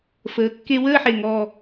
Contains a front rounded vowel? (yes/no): no